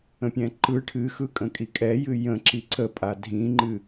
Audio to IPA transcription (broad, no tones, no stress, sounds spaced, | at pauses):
ə̃ pʲ ɛ̃ ǃ ɯ ʈʰ ɨ x ɯ kʼ ə̃ kʼ i kʼ ɛ j ɨ j ə̃ ǁ i ǀ ə pʼ a dʱ ĩ ŋ͡ǃ ɨ